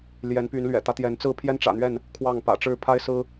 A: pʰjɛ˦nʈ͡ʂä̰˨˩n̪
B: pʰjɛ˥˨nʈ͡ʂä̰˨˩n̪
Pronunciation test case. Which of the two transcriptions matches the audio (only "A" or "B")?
A